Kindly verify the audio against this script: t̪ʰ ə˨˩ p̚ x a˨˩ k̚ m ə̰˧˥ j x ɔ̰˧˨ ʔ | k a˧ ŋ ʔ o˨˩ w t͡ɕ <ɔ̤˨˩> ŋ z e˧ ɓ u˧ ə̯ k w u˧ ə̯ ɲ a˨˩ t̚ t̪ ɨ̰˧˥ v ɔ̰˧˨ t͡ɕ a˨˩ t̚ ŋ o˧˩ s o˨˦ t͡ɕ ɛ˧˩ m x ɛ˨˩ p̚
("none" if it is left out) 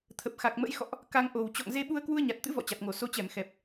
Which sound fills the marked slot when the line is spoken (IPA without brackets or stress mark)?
ɔ̰˧˨